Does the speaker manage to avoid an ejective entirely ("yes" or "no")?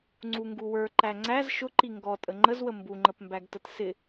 no